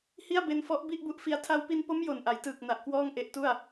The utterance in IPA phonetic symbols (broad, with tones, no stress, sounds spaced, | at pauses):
h i˥˩ a̯ b e˧ n f ɔ˦˥ ʔ b i˥˩ ʔ b u˦˥ ʔ f i˧ a̯ tʰ a˧ w p i˧ n p o˦˥ m j o˨˩ n ʔ a˩˦ j t ɯː˨˩ k̚ n a˨˩ ʔ k w ɔː˥˩ ŋ ʔ e˦˥ ʔ t u˥˩ a̯